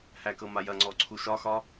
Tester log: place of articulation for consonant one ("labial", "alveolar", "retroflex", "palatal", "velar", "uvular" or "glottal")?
glottal